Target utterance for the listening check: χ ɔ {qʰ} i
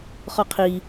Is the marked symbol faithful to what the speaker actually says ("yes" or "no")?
yes